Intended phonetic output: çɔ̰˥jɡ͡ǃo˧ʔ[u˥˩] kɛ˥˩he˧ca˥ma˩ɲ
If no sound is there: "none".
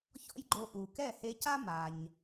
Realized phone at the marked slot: u˩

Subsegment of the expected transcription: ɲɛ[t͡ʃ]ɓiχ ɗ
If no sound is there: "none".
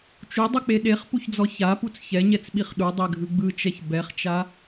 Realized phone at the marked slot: t͡s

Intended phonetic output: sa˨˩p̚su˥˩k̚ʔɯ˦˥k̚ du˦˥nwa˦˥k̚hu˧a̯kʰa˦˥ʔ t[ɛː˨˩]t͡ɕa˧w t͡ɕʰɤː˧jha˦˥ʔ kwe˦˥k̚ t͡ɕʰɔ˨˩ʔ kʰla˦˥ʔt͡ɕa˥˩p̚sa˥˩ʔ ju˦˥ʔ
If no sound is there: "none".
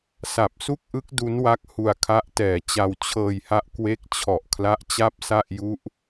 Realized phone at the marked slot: ɛː˨˩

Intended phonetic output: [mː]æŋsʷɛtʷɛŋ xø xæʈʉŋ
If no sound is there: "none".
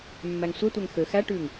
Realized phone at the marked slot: mː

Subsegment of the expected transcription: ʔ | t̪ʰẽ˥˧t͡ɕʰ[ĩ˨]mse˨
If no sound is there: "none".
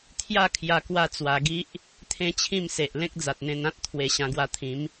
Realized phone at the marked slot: ĩ˥˧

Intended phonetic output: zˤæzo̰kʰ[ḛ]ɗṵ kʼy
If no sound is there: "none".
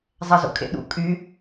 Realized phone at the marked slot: ḛ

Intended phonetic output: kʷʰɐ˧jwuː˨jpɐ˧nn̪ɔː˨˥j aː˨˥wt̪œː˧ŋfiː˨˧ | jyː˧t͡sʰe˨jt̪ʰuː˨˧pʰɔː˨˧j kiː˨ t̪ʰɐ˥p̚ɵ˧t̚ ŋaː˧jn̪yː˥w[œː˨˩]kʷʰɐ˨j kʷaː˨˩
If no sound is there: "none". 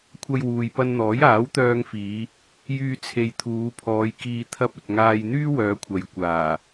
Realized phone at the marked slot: œː˨˧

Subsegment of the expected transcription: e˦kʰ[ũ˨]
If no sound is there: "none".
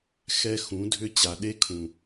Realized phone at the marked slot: ũ˨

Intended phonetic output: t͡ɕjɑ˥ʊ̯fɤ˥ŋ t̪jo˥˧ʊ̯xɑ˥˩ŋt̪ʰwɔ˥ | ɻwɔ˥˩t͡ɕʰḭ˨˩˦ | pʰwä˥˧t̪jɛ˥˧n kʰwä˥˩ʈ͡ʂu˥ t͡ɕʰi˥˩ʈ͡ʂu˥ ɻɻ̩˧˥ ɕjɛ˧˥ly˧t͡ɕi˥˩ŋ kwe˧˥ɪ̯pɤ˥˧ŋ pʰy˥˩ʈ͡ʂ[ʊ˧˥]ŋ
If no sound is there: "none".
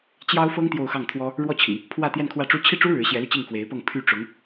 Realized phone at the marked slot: ʊ˧˥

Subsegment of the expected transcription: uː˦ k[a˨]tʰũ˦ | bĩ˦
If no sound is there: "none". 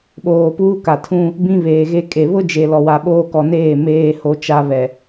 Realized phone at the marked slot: a˨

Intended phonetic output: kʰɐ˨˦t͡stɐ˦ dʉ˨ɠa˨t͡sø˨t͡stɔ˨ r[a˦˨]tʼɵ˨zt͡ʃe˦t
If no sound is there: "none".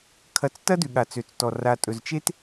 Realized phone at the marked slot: a˨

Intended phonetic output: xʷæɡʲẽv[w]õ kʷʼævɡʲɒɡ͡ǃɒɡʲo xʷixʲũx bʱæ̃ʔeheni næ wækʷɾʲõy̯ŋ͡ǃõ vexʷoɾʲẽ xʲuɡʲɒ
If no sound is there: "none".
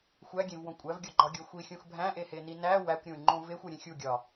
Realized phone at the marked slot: w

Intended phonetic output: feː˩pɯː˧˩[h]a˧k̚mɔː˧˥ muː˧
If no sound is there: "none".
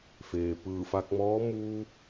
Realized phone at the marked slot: f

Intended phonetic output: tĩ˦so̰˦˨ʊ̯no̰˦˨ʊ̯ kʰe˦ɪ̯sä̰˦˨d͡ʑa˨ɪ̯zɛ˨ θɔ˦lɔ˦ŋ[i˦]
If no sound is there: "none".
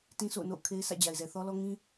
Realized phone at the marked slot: ĩ˦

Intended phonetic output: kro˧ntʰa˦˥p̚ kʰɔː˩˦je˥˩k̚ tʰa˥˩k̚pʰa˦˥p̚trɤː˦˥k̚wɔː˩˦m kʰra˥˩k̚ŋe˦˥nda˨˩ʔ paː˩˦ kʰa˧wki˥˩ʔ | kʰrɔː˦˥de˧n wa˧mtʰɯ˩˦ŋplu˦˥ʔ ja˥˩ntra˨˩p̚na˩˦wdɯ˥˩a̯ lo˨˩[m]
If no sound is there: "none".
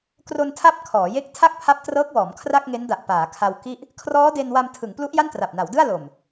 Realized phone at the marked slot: m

